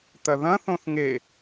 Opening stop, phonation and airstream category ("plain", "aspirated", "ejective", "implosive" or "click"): plain